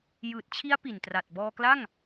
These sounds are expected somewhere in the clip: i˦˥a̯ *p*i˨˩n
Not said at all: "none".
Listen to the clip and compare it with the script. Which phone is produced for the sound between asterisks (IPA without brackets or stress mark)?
p